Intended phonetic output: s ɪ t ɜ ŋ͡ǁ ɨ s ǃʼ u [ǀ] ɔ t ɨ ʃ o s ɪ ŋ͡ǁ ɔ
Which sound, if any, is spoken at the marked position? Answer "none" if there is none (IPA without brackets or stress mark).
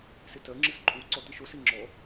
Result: ǀ